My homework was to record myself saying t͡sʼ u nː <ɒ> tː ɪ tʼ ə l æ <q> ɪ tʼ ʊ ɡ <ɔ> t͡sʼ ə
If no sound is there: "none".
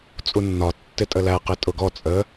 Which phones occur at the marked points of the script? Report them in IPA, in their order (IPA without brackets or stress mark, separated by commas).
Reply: ɒ, q, ɔ